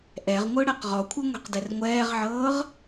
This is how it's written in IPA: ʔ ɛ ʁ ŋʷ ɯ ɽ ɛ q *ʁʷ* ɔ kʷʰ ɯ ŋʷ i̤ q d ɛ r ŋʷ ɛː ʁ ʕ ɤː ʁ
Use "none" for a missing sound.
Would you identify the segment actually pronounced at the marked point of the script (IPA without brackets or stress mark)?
ʁ